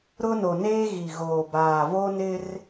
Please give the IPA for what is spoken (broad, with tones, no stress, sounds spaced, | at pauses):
ɾ ʊ˦ n o˨ n eː˦ ɣ i˨ ɣ oː˨ b aː˨ v o˦ n ɪ˦ r